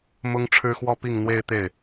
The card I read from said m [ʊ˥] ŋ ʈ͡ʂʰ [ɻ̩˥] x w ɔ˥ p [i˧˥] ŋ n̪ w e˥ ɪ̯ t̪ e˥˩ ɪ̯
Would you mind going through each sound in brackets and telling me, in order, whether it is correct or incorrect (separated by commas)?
correct, correct, incorrect